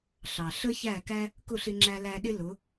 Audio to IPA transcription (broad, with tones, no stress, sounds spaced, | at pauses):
ɬ ɑ˩ ɬ ə˥ ç æ˥˩ k æ˥ | k ʊ˥˩ ɬ ɪ˧ ŋ͡ǁ æ˧ l æ˧ ɗ ɪ˥ l ʊ˩˥